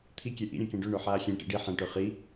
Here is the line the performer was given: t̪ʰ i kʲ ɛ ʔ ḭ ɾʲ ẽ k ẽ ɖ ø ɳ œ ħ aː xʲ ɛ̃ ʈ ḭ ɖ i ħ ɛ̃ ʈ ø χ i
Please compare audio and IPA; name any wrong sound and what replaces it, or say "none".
none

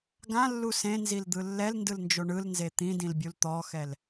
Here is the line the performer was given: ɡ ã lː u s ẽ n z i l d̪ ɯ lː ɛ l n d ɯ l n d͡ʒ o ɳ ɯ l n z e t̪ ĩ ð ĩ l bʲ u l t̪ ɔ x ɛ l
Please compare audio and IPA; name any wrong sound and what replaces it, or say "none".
ð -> d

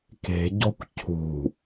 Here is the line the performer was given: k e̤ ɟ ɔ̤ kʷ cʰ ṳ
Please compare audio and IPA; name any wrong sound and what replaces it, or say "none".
none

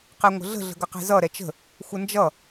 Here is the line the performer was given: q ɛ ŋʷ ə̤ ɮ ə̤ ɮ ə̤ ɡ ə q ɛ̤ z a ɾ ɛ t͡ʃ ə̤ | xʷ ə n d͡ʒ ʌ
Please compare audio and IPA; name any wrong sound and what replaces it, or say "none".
a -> ʌ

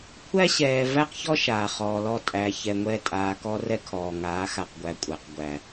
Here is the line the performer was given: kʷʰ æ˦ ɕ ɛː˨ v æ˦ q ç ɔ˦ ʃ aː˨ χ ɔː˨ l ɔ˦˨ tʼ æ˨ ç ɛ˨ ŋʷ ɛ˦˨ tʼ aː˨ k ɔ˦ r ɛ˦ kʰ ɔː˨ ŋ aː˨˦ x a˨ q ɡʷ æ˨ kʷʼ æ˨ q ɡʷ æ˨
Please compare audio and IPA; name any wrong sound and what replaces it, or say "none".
none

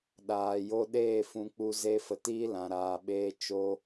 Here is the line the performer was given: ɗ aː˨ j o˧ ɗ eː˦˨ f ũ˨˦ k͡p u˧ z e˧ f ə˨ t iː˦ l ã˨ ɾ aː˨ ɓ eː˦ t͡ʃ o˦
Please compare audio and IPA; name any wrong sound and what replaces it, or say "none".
none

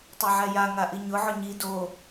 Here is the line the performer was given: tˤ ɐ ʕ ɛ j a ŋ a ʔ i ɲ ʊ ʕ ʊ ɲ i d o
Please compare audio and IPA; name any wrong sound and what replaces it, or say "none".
ɐ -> a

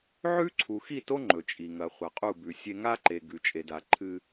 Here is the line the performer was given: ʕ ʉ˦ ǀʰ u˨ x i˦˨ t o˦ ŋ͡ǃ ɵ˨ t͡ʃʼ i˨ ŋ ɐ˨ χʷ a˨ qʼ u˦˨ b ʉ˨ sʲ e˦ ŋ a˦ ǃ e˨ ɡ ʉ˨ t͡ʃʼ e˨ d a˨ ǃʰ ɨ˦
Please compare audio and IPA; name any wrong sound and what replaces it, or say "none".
none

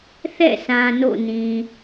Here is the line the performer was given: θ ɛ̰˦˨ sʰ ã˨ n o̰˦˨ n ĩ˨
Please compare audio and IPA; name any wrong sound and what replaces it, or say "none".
none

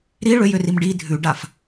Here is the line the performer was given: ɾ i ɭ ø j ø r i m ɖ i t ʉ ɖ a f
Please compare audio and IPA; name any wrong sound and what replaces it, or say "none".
t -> dʱ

